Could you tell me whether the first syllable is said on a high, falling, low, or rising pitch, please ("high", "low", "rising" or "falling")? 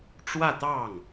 falling